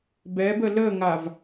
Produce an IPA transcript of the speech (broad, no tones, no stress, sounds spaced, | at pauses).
b ɛ b ə l ə ŋ a v